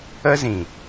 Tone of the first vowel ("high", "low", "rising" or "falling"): high